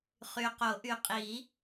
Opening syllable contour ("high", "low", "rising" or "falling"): low